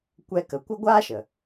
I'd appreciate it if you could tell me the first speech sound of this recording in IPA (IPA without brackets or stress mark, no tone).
kʷ